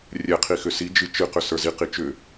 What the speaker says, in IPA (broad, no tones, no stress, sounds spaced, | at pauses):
rʲ ɛ qʰ i x ʏ s i d͡ʒ ɨ t͡ʃ ɨ q ʏ s ə˞ z i q i t͡ʃ ʏ